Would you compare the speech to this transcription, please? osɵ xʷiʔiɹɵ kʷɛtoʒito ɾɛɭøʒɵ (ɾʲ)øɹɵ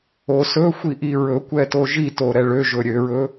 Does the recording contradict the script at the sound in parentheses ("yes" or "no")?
no